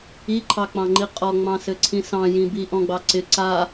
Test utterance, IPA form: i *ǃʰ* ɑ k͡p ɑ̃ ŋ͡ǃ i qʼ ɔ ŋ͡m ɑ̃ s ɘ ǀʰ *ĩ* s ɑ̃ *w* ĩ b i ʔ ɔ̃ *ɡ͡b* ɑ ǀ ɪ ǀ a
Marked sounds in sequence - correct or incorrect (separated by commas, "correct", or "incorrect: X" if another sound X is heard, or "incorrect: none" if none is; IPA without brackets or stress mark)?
correct, correct, incorrect: j, correct